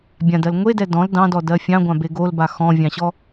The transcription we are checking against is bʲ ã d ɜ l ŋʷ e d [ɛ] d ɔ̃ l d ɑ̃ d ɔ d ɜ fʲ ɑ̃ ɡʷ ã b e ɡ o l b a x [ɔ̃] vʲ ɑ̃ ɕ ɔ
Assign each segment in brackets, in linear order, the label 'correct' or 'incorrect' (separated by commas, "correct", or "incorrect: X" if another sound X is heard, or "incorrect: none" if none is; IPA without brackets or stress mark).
correct, correct